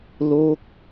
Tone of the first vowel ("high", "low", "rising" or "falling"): falling